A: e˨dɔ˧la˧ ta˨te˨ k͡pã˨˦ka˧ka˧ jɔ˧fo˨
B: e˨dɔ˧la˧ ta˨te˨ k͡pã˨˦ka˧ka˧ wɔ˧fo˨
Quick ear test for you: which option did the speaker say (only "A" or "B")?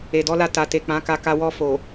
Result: B